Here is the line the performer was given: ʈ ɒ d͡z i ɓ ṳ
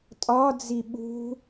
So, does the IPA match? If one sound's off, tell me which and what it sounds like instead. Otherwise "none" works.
ʈ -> tʼ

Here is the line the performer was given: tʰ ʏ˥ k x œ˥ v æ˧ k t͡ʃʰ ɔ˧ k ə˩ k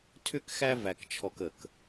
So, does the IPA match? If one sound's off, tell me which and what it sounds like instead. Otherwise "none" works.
œ˥ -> æ˥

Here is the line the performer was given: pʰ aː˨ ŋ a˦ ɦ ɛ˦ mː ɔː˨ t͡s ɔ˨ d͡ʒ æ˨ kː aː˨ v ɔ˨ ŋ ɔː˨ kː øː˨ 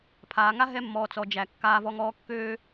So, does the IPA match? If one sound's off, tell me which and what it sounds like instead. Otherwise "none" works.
none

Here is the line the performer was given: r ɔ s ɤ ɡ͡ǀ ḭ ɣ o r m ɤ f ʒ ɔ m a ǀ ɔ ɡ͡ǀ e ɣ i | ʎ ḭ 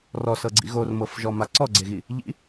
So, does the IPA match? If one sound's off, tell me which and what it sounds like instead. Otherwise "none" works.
none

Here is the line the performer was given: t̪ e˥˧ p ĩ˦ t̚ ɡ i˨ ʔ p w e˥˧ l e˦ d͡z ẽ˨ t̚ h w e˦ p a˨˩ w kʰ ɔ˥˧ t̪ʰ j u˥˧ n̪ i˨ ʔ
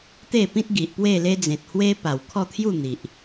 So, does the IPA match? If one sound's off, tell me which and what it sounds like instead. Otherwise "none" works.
none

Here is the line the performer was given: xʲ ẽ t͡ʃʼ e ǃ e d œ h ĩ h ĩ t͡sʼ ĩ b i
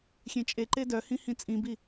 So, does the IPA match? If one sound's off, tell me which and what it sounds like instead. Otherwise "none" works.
none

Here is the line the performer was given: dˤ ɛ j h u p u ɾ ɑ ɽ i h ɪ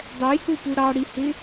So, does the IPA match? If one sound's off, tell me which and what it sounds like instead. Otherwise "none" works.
none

